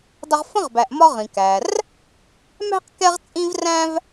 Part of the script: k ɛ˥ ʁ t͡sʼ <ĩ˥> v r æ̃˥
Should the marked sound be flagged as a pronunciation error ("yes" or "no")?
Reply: no